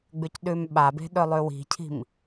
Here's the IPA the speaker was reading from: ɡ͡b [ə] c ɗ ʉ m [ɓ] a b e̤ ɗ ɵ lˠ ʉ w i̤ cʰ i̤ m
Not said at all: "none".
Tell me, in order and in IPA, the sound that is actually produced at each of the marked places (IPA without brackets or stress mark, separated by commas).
ʉ, ɓ